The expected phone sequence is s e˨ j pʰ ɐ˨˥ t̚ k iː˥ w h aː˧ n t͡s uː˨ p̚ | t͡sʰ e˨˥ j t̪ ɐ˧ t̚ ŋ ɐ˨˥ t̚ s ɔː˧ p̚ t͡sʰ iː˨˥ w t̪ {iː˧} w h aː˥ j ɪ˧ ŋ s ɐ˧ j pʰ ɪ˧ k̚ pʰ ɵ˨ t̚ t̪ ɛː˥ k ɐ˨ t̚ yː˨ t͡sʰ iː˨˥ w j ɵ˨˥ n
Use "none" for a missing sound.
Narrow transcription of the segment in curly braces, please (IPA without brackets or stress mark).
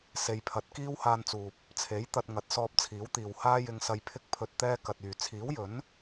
iː˨